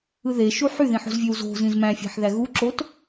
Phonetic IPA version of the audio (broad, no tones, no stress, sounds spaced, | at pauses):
ɯ ð e ʃ u ħ y ð ĩ ħ o̤ z vʲ ø w z o̤ z ĩ z m æ̃ fʲ æ̤ ħ ð æ ɣ u ǁ o t